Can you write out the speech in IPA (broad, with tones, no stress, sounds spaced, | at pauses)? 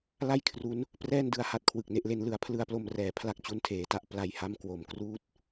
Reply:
l a˥˩ j kʰ r u˦˥ n | p r ɛː˥˩ n d ɯ˧ a̯ h a˦˥ t̚ kʰ w ɯ˨˩ k̚ n e˥˩ ʔ l e˦˥ n l ɯ˩˦ a̯ pʰ l ɯ˧ a̯ p l o˧ m r ɛː˩˦ pʰ l a˦˥ k̚ t͡ɕ u˧ n tʰ eː˩˦ t a˥˩ ʔ p l a˧ j h a˥˩ m k w o˨˩ m k r uː˥˩ t̚